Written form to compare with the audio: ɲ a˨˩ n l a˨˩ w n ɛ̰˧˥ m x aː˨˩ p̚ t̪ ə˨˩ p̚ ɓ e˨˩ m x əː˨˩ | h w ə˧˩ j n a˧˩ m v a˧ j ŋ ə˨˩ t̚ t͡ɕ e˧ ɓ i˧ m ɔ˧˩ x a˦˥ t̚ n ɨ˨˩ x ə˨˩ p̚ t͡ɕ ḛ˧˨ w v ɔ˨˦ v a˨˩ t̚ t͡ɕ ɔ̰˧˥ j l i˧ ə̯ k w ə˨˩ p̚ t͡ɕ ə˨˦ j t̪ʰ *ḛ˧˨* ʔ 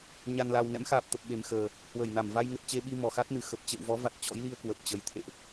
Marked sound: correct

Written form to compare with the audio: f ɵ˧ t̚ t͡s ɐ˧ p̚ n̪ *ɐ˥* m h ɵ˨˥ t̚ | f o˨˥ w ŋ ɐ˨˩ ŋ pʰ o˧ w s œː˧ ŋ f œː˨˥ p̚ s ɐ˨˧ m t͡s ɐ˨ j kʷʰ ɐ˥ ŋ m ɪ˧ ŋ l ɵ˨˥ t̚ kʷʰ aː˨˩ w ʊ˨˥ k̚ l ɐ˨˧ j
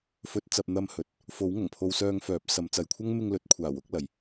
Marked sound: incorrect: ɐ˧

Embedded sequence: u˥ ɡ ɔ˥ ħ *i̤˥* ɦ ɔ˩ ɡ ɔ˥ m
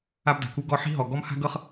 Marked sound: correct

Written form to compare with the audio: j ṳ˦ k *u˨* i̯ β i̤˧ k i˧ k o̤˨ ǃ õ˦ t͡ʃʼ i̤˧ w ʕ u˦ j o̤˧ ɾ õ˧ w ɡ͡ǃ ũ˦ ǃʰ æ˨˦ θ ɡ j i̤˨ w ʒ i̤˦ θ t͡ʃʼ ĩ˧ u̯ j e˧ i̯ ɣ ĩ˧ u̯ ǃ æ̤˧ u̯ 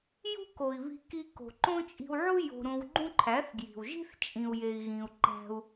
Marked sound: incorrect: o˨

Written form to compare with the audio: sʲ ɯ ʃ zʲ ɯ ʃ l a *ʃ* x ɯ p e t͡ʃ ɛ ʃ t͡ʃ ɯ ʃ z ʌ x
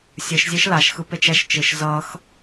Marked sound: correct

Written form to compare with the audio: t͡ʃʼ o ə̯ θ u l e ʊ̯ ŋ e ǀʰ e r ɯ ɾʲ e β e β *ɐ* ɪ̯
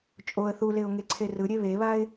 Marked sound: incorrect: a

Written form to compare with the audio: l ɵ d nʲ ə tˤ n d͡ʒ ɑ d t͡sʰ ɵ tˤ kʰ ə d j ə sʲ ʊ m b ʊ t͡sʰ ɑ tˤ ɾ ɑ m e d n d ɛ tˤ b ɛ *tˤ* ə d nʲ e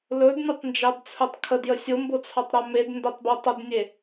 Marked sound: correct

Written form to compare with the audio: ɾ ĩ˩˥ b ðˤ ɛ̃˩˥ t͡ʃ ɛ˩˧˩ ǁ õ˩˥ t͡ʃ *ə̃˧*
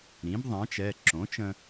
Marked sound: correct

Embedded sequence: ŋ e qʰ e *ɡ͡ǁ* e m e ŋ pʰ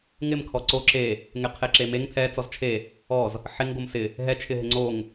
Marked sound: incorrect: ǁ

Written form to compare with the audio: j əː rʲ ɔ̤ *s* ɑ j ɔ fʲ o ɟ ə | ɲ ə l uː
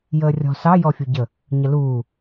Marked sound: correct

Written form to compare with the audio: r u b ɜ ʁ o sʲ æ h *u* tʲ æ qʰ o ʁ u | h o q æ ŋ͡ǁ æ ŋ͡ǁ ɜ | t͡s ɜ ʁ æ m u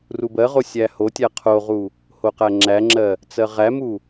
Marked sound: incorrect: o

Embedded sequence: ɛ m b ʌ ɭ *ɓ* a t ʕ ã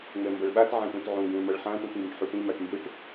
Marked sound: correct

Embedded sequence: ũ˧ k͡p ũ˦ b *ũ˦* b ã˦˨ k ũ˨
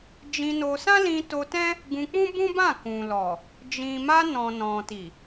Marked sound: correct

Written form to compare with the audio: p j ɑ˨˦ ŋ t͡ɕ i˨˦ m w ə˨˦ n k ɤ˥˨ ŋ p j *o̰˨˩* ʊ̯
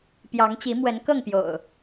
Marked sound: correct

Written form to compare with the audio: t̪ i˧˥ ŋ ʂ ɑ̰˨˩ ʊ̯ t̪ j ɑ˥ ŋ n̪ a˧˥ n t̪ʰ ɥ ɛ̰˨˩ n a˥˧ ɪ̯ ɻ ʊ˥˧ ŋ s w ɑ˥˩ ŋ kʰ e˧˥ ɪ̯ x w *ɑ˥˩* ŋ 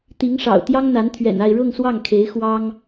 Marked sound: incorrect: ɑ˥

